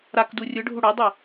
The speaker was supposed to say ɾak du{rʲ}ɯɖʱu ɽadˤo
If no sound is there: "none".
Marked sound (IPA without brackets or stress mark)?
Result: rʲ